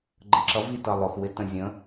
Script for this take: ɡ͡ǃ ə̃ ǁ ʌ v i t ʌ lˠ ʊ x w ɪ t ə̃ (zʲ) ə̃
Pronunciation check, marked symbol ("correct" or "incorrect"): correct